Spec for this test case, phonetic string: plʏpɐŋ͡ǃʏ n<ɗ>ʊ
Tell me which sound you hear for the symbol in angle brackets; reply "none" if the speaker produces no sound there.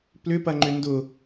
d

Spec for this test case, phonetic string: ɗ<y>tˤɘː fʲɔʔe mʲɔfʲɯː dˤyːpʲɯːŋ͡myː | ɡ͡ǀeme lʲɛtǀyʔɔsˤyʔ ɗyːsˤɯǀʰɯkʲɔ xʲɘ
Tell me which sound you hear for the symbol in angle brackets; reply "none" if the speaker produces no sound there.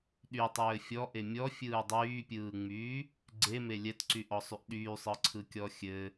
y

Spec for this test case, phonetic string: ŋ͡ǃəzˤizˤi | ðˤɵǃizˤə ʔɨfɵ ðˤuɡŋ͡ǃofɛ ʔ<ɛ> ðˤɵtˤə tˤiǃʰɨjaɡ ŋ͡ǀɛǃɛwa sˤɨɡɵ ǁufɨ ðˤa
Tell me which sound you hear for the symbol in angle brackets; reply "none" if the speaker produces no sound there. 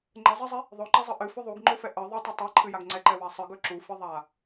ə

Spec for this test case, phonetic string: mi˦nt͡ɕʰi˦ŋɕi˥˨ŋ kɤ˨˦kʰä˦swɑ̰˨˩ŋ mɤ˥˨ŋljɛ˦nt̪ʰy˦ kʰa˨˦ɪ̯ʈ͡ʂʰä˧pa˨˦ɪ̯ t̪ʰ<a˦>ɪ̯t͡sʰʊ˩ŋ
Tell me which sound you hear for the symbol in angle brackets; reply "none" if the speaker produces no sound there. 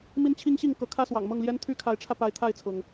a˥˨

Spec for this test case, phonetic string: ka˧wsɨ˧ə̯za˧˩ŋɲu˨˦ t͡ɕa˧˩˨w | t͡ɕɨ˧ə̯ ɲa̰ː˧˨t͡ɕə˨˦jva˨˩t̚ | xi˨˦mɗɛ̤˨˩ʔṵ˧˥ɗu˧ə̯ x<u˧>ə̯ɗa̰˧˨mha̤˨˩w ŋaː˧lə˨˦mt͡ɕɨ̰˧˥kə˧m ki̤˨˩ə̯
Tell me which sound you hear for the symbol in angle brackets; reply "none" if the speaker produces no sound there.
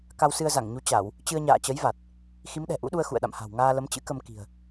ṵ˧˨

